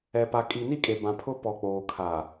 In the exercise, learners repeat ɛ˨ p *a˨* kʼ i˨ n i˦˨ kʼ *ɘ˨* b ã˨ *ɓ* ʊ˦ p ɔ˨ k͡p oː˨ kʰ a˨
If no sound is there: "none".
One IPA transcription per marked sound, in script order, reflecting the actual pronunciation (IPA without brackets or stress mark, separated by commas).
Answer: a˨, e˨, pʰ